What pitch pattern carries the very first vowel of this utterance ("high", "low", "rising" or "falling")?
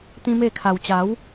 high